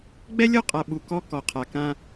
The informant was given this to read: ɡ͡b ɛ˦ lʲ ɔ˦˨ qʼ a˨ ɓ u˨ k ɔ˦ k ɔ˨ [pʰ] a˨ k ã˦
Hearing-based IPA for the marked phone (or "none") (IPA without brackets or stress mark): qʰ